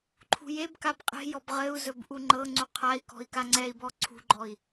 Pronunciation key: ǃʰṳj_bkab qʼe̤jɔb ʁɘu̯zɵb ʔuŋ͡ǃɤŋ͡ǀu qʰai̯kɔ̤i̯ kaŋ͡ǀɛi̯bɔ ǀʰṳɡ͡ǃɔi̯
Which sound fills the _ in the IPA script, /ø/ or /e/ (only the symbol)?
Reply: e